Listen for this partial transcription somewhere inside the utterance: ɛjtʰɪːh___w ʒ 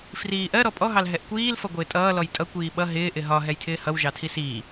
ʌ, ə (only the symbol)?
ʌ